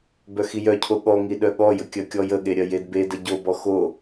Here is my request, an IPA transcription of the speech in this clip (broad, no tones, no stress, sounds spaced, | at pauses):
b œ x i j œ cʰ o ɠ ɔ ŋ i ɗ œ ɠ ɔ j ə kʲ ɜ kʲ ɔ j ə ɠ e ɾʲ ɜ j e d b e d ə ɟ o b ɔ x o